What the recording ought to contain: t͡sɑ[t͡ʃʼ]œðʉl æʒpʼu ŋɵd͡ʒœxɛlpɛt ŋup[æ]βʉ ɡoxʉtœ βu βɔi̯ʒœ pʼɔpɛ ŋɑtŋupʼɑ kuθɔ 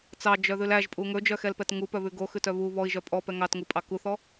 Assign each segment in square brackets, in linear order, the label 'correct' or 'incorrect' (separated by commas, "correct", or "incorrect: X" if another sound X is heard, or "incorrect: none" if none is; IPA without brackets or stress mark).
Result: incorrect: d͡ʒ, incorrect: œ